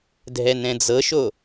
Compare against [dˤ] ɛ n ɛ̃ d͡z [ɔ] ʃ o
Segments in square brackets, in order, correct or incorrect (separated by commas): incorrect, incorrect